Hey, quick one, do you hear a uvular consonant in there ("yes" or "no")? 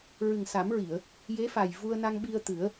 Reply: no